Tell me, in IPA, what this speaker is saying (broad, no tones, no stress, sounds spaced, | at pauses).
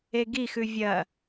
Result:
e ɡ i x ʉ vʲ ɐ